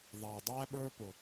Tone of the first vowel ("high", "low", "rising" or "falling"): low